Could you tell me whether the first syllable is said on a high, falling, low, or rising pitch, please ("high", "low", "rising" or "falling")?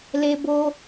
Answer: high